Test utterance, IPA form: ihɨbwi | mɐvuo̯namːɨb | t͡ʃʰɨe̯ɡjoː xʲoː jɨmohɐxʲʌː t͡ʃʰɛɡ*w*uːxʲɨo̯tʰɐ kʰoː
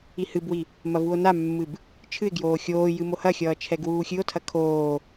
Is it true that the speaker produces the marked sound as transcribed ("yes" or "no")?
yes